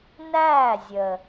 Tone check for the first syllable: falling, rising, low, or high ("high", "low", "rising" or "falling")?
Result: falling